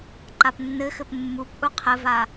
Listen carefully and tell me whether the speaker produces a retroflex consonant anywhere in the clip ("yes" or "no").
no